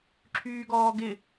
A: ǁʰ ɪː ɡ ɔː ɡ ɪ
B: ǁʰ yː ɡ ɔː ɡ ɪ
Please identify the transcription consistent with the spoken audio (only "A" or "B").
B